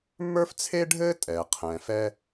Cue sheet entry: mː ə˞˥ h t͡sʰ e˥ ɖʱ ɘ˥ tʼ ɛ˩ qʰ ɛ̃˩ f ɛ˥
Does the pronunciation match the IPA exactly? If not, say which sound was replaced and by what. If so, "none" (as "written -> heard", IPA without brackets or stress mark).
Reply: h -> f